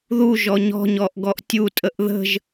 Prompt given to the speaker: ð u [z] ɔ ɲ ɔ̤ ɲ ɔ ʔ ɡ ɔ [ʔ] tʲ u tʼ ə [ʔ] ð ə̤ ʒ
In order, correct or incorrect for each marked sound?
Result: incorrect: ʒ, correct, correct

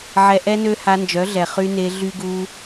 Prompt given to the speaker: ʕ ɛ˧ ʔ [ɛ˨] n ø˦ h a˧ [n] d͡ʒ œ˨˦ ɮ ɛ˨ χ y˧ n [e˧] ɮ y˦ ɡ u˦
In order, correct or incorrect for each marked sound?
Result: incorrect: ɛ˦, correct, correct

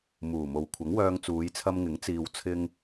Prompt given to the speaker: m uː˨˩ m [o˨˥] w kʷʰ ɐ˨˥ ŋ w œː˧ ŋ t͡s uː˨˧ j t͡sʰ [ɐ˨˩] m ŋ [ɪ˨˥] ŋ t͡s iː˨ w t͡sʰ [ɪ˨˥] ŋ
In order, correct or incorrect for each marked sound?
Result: incorrect: o˨, incorrect: ɐ˧, correct, incorrect: ɪ˧

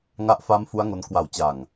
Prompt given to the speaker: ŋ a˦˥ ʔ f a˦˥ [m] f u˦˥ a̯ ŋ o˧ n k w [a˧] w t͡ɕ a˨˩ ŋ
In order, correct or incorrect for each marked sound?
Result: correct, incorrect: a˨˩

